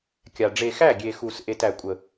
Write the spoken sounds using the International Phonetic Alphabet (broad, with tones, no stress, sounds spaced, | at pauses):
kʲ a˨ ɖ͡ʐ e˨ x æ˦˨ ɡʲ e˨ x u˨ s ʔ e˨ t æ˨ kʷʼ ə˨